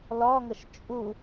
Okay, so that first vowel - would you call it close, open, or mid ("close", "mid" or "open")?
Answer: open